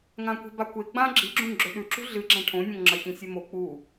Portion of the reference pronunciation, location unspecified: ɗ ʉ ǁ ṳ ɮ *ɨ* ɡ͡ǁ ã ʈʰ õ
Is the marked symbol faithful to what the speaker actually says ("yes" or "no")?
yes